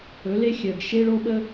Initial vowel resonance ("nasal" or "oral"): oral